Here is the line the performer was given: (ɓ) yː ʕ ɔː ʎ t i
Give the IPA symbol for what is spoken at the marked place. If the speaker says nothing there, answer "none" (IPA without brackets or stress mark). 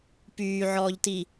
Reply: p